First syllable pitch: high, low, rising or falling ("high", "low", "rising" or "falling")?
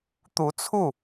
rising